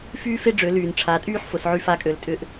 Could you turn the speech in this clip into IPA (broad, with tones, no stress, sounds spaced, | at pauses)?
f yː˥ f e˥ ɖ͡ʐ ø˩˧ l yː˩ n ʈ͡ʂʰ a˩˧ tʼ yː˥ ħ f ʊ˩˧ s ʕ y˧˥ f a˧˥ kʼ ø˩˧ l tʼ ʏ˧ ʔ